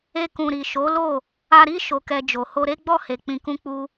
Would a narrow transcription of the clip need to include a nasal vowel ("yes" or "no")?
yes